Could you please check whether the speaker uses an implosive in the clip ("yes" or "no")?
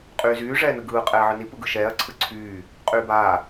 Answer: no